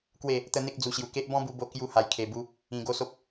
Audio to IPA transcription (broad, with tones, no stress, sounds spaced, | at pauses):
k w e˥˧ | t̪ ə˦ n̪ e˦ k̚ d͡z u˧ ɕ j u˧ k e˦ ʔ b ɔ̃˦ b u˧ b o˧ k j u˦ h a˧ j kʰ e˧ b u˦ | ĩ˧ ɡ o˦ s o˦ p̚